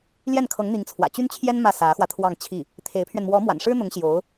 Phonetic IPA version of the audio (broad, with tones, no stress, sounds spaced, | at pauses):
l j ɛ˥˩ n kʰ ɤ˧˥ ŋ n̪ i˧˥ ŋ t͡sʰ w ä̰˨˩ t͡ɕ y˥ n t͡ɕʰ j ɛ˥ n m ä˥˩ s ä˧˥ x w ä˧ t̪ʰ w ɑ˥˧ ŋ t͡ɕʰ i˥˩ | t̪ʰ e˧˥ ɪ̯ pʰ ɥ ɛ˧ n m w ɔ˧˥ m w a̰˨˩ n ʂ ɻ̩˥ n̪ ʊ˧˥ ŋ ɕ j o˧˥ ʊ̯